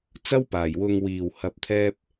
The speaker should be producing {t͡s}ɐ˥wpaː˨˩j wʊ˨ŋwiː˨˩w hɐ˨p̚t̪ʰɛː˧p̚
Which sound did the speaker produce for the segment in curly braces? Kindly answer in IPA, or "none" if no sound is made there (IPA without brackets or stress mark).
t͡s